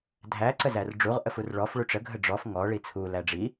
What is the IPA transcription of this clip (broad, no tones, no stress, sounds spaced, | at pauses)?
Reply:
dʱ æ ǀ ə z æ r ɖ͡ʐ u ʁ ʔ ə f u r ɭ ɔ f ɭ u ʈ͡ʂ ə ɡʱ ə ɖ͡ʐ ɔ f ŋ ɔ ɭ i t͡sʰ u l æ ɖ͡ʐ i